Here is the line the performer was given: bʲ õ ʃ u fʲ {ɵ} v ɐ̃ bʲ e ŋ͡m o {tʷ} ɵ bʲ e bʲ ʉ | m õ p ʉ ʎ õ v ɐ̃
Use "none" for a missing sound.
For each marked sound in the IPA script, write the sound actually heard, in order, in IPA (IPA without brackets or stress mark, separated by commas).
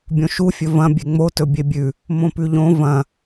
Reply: ɵ, t